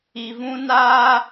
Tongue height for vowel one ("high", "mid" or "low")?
high